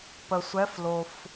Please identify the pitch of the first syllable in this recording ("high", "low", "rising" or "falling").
low